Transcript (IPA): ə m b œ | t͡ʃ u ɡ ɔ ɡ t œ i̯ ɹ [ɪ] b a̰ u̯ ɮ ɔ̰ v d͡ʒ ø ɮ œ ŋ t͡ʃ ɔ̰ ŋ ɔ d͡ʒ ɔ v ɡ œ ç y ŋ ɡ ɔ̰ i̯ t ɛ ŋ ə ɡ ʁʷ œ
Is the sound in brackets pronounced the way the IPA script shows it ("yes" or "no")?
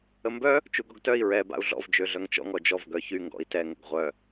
no